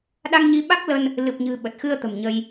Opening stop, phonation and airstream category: implosive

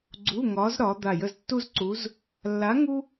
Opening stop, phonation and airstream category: click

